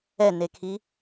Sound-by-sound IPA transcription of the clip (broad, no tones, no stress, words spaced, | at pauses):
ɛnekʰi